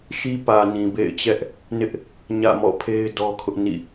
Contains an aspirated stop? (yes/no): yes